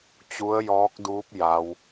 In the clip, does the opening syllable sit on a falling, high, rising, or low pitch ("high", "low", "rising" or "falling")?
rising